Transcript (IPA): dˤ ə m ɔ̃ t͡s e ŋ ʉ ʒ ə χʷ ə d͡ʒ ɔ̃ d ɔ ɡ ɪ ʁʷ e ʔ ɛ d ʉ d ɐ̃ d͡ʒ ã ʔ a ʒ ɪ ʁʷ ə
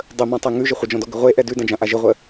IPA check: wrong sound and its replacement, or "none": t͡s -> tˤ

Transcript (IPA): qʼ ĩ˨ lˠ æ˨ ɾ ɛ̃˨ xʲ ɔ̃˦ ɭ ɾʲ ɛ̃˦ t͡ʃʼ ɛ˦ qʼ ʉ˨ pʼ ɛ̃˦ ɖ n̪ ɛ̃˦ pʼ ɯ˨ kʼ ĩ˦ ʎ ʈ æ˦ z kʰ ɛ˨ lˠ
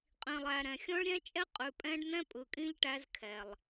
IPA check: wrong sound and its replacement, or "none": none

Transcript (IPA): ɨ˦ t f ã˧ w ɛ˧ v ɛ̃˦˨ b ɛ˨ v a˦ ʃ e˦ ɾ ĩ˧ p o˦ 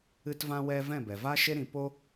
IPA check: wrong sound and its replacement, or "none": f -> v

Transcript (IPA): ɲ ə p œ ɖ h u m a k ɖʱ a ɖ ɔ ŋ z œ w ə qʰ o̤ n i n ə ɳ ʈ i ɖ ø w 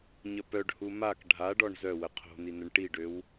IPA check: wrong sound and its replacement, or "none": ŋ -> ɳ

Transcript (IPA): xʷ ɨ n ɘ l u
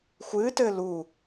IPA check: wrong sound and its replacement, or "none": n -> t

